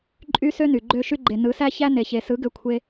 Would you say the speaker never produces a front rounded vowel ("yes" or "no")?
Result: no